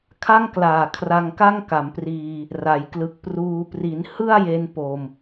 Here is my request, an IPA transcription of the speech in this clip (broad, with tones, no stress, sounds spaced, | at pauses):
kʰ a˥˩ ŋ k l aː˨˩ kʰ r a˧ ŋ k a˥˩ ŋ k a˩˦ m p r iː˧ | r a˩˦ j k l ɯ˨˩ k̚ p r uː˧ p r i˩˦ n h ɯ˥˩ a̯ j e˧ n p o˧ m